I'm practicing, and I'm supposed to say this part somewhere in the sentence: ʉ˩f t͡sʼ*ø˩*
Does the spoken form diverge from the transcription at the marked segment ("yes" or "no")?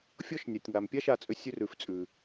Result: yes